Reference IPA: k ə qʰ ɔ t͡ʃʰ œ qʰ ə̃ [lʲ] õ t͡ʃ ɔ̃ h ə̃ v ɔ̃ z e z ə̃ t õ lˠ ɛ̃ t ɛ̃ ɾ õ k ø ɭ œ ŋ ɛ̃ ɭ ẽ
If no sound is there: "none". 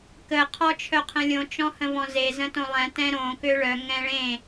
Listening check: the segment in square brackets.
lʲ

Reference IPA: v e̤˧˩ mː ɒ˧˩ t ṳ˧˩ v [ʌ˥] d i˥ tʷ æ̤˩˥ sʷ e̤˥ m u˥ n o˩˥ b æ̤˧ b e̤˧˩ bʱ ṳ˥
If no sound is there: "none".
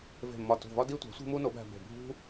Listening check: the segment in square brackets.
ɒ˥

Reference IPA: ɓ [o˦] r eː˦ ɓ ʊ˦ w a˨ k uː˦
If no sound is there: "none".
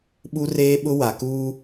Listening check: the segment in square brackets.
u˦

